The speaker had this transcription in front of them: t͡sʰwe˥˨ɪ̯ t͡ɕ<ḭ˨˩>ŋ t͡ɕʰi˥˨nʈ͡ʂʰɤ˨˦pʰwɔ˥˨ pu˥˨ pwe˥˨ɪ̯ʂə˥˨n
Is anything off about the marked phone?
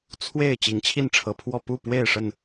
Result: yes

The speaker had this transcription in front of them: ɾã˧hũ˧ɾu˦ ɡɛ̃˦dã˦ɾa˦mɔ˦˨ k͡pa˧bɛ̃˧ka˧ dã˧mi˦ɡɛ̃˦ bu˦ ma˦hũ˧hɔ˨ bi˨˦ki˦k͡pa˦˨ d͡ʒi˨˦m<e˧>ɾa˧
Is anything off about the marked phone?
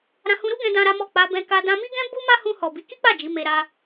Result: no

